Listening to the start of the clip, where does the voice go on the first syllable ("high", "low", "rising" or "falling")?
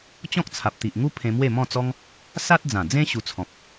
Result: high